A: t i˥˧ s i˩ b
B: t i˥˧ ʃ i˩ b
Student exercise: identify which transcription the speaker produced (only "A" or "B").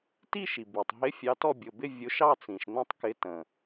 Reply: B